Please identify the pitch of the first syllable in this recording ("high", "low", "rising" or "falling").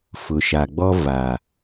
low